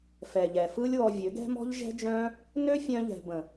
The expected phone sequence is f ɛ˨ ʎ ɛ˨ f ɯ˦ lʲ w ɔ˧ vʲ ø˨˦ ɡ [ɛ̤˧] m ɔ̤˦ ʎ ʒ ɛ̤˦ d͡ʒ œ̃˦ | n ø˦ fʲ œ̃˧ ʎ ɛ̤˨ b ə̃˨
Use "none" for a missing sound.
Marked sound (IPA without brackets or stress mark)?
ɛ̤˦